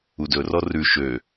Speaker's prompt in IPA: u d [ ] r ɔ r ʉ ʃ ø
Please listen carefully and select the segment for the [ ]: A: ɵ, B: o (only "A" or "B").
A